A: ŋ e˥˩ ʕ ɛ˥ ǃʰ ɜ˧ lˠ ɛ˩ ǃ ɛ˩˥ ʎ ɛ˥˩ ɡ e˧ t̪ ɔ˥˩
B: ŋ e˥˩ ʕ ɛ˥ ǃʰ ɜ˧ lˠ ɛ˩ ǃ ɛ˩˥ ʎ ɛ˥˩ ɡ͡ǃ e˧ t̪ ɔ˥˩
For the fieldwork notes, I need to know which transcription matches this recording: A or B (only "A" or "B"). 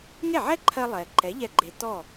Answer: B